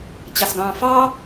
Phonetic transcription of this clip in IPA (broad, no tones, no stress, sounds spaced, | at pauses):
t͡ɕ ɑ s ɡ ɑ̃ː f ɑ